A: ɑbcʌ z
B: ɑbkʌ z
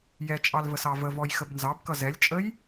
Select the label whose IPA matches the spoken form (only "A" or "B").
B